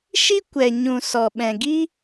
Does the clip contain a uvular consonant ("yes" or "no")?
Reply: no